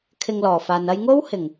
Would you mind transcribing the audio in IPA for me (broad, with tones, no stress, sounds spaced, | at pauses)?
kʰ ɪ˧ ŋ l ɔː˨˩ f aː˨ n ɐ˧ j ŋ o˥ w h ɪ˨˩ ŋ